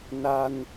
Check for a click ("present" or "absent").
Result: absent